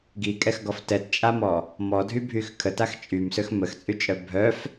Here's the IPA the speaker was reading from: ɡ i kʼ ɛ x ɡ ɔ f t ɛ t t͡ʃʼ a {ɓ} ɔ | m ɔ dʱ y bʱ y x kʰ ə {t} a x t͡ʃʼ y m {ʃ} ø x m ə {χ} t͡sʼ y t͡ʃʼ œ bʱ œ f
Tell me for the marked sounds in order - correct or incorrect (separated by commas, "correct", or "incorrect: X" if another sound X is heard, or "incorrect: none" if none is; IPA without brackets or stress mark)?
incorrect: m, correct, incorrect: s, incorrect: x